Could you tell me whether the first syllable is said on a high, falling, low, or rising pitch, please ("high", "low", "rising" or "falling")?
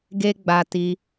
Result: high